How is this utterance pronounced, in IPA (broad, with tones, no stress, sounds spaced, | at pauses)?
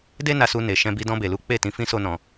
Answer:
d e˦ n a˧ s u˧ n e˨ ʃ ɛ̃˧ b i˧ d ɔ̃˧ b e˨ l u˨˦ k͡p e˦˨ t ĩ˧ f ĩ˦ s o˦ n ɔ̃˧